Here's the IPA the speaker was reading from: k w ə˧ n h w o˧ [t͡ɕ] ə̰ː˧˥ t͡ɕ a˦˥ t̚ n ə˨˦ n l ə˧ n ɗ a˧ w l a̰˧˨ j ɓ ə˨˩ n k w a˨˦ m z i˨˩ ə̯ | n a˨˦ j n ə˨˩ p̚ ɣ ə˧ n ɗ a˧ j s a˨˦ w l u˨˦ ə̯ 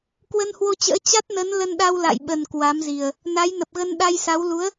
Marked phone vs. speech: correct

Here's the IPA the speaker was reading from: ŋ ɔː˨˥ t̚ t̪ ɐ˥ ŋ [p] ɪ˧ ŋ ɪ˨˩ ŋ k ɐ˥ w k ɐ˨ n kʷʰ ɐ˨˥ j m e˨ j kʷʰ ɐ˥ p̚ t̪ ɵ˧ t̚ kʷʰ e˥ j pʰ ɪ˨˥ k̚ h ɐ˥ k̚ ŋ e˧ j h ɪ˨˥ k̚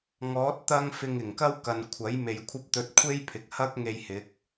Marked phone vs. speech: incorrect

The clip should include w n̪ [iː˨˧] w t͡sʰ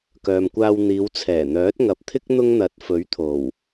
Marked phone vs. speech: correct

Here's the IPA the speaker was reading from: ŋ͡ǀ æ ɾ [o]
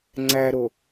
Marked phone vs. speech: correct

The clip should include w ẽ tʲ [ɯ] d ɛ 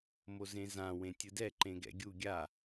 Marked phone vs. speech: correct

